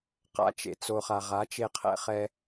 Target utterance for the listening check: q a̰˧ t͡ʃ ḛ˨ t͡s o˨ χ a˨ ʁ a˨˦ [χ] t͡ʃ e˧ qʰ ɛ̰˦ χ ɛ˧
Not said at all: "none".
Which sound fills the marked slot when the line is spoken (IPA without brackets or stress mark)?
none